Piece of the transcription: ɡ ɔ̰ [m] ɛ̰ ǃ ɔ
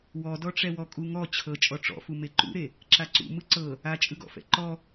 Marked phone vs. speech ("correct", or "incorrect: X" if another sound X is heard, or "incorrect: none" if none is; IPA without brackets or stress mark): incorrect: f